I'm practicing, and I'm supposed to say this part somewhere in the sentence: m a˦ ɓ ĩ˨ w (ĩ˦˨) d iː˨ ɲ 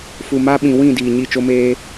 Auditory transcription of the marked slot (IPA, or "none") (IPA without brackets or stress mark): ĩ˦˨